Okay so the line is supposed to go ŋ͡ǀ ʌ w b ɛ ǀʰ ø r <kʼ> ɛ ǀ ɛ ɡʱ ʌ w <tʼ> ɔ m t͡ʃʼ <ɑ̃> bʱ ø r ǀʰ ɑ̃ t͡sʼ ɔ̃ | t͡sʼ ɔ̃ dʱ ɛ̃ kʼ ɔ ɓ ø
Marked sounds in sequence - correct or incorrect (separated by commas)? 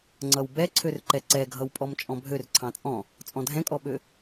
incorrect, incorrect, incorrect